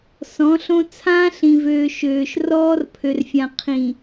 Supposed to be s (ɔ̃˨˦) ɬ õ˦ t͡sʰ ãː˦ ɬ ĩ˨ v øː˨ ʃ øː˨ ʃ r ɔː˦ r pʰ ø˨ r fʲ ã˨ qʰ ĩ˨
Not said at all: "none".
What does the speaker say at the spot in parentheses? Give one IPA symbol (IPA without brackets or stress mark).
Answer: ɔ̃˨˦